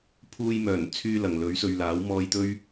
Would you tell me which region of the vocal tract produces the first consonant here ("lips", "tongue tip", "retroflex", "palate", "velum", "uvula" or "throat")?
lips